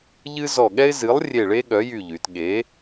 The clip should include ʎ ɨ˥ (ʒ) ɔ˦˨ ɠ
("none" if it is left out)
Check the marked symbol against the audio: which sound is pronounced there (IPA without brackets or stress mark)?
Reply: z